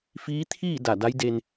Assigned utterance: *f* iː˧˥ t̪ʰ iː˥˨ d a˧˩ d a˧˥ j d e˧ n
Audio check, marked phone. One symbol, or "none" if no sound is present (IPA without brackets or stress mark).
f